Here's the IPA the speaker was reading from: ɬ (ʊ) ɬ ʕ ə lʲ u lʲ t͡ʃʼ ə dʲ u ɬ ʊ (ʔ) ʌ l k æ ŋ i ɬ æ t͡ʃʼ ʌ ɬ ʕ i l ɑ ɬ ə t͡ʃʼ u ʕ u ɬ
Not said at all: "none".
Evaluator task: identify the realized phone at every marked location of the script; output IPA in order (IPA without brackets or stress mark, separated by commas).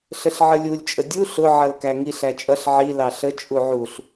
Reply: ə, ʕ